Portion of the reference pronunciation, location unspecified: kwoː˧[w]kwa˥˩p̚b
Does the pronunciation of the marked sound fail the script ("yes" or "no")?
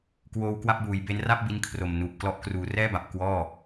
no